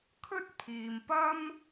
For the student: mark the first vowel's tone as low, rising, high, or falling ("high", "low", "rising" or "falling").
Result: high